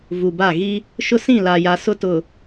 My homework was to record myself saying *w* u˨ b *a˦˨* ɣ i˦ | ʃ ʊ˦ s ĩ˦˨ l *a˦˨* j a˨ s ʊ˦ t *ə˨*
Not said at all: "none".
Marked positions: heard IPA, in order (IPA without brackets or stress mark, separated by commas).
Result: v, a˦˨, a˨, ʊ˨